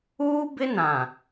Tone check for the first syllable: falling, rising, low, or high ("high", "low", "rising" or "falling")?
high